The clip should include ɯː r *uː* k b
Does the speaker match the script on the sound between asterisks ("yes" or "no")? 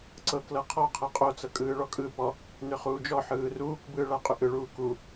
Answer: yes